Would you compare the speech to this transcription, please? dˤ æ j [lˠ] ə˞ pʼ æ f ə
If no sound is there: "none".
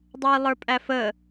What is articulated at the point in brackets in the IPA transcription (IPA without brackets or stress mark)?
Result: lˠ